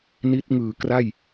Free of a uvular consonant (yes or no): yes